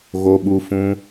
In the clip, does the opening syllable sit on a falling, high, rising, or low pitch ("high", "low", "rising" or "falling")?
low